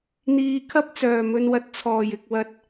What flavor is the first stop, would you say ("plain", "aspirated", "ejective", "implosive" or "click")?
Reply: aspirated